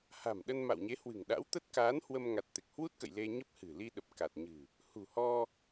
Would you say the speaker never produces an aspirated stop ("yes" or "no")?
yes